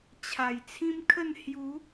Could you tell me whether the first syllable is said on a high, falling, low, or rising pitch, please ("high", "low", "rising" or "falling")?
low